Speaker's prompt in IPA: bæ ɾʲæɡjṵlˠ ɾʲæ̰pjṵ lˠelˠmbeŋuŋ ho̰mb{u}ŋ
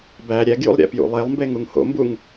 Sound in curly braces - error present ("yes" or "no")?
no